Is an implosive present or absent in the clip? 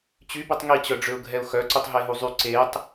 absent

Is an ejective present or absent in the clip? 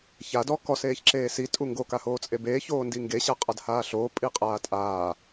present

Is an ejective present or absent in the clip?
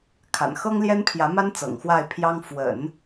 absent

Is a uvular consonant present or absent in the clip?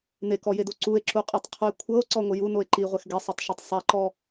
present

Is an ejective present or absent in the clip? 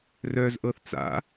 absent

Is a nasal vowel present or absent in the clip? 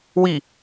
absent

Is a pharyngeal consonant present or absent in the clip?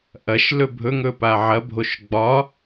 present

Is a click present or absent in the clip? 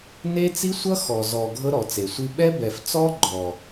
present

